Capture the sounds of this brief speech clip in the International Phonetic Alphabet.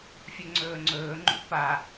fʲɵŋ͡ǀɵːŋ͡ǀɵːŋ͡ǃṵ pa

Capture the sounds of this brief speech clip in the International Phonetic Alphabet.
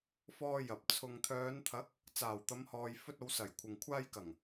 fɔː˧jɐ˨p̚ t͡sʰʊ˨ŋt̪ʰœː˨˧n t̪ʰɐ˨˥k̚ | t͡saː˨˩wt̪ɐ˨˧mhɔː˨j fɵ˧t̚o˨˧wsɐ˨˩j kʷʰɪ˨ŋ kʷʰaː˧jkɐ˨˩ŋ

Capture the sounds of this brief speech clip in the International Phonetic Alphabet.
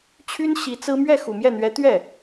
t͡ɕʰy˥n ɕi˧˥t͡sɹ̩˥ mɥɛ˥˩xu˨˩mjɛ˥˩n̪ɥɛ˧˥ t̪ɥɛ˥˩

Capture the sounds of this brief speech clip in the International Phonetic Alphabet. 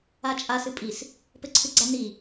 at͡ʃʼa sɨpʼis | pɘǀʰɨɡ͡ǀani

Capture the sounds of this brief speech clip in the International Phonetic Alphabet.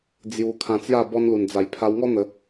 d͡zju˧kʰã˧t͡sja˥˧ bɔ˧nlu˨˩nd͡za˨˩j pʰa˧wŋɔ˦n̪ə˧

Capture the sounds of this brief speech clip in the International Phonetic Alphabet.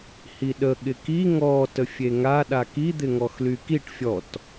hiɗə ɠɪki ŋɔ təfʲeŋa ɗakid̪ɪ ŋɔxlykiʈ fʲɔt

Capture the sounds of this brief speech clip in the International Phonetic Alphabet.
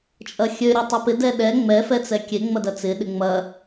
t͡ʃʼɐxʲø ɾʲotˤopɪ dɛɗɛ ŋ͡mɛ fɛt͡sɛkʲe ŋ͡mɐdɐt͡sɪ ɗɪŋ͡mɐ

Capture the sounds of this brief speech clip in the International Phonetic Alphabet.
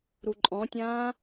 ɾuǃʼɔ̃tʲãː

